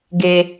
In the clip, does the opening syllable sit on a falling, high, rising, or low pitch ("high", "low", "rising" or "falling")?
high